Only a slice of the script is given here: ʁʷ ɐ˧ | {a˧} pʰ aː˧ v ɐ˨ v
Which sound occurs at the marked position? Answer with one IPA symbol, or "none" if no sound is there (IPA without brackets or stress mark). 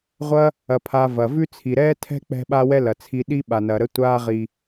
ɐ˧